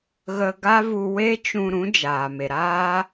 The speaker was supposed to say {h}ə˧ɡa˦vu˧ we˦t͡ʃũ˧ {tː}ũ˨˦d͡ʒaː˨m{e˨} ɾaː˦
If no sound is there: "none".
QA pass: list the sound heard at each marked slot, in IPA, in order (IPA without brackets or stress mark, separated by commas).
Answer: ɣ, ɾ, e˨